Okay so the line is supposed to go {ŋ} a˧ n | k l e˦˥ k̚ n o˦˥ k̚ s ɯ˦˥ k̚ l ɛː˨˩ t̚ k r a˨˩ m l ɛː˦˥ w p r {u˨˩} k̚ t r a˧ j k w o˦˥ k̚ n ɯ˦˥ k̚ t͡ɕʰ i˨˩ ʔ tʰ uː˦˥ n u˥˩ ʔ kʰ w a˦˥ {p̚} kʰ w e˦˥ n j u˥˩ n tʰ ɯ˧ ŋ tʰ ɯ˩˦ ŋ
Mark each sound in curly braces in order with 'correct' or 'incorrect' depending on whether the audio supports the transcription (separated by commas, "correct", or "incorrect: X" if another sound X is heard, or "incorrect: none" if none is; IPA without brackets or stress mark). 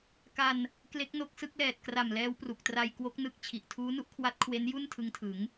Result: incorrect: k, correct, incorrect: t̚